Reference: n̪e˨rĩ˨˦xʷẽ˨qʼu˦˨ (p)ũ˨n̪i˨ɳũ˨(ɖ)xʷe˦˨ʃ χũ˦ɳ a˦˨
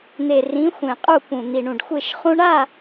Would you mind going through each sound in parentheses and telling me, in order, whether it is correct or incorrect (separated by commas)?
correct, correct